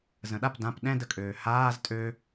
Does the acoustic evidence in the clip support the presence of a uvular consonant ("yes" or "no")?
no